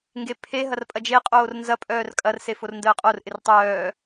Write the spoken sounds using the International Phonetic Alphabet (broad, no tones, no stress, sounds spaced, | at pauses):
ŋ ɡ e pʰ e ɦ ɐ r pʼ ɐ d͡ʒ e qʼ oː r n z ɐ pʼ œː r kʼ ɐ r s e f o r n d əː qʼ o r ʔ ɪ r tˤ œː